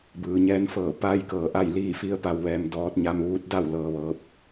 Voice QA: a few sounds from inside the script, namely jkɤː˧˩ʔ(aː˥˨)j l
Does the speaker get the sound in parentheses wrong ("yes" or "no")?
yes